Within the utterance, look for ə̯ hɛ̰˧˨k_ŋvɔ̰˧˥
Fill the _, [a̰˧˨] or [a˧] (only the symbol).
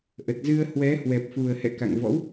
a̰˧˨